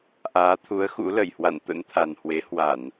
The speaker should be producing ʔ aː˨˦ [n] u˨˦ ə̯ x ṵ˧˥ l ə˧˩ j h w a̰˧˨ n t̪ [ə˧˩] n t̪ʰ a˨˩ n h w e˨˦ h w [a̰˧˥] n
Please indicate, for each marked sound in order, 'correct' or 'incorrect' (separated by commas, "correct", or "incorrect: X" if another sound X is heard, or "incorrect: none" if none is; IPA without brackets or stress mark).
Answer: incorrect: t̪ʰ, incorrect: ə̰˧˥, incorrect: a˧˩˨